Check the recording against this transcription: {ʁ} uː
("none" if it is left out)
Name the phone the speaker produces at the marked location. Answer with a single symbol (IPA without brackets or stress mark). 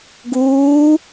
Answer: ɡ